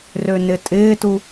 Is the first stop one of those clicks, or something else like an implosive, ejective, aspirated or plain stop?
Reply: ejective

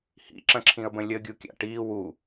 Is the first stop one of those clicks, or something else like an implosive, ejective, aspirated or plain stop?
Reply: click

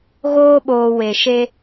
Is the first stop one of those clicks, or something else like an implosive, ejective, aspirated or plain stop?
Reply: implosive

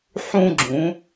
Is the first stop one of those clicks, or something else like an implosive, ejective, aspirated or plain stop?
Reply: click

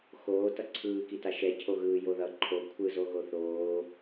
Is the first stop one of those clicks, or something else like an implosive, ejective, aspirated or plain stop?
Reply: plain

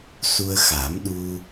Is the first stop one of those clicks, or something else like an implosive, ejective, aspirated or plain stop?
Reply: implosive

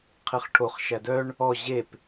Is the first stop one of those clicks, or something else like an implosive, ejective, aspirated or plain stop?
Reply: aspirated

